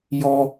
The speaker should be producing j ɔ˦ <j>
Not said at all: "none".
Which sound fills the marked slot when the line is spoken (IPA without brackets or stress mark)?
none